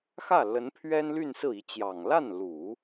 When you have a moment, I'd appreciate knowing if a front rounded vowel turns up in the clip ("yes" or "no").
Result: yes